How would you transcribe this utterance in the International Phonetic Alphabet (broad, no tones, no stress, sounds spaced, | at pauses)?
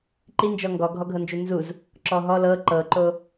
ǃ i n d͡ʒ ɔ ŋ ɡ ɔ ɡʱ ɔ ɡʱ ɤ n d͡ʒ u n z u z | ǁ ɔ ɦ ɔ l ɤ ǃ ɤ ǃ o